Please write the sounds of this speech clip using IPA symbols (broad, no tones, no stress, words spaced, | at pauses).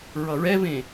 ɹʌɹɛvẽ